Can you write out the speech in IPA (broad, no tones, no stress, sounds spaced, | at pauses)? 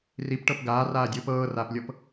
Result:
r i p ʈ ɤ p ɡ aː r aː dʲ ɯː p ɤː r aː p lʲ ɤ p